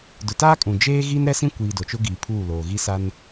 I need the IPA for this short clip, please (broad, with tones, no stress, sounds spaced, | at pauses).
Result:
d ʊ˨ t aː˦ kʼ ũ˨ d͡ʒ eː˦ ɣ i˦ n ɾ ɛ˦ s ĩ˦ kʷ iː˨ d o˨ t͡ʃ ʊ˦ ɡ iː˨ pʰ uː˦˨ l oː˨ ɣ i˦ s a˦ n